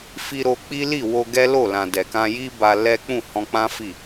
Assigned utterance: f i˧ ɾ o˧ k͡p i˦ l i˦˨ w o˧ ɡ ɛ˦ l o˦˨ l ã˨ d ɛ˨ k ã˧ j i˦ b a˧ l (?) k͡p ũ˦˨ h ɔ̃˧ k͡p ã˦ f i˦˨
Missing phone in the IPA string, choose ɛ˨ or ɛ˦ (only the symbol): ɛ˦